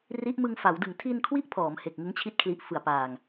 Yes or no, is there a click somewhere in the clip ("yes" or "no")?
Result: no